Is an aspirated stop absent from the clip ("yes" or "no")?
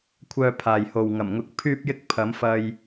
no